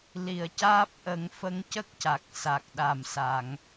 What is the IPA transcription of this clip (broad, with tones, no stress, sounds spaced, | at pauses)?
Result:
l i˨˩ ə̯ c aː˦˥ p̚ ʔ ə˨˩˦ ŋ f ə˧ ŋ c ə˦˥ k̚ c a˨˩ k̚ s a˨˩ k̚ ɗ a˨˩ m s a˨˩˨ ŋ